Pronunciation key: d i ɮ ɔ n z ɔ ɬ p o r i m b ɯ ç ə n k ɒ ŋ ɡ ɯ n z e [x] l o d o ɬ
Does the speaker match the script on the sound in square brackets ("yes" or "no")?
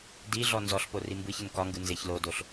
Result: no